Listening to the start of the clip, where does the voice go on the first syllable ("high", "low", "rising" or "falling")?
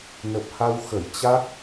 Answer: low